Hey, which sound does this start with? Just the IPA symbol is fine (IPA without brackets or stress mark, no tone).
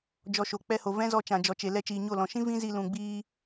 d͡ʒ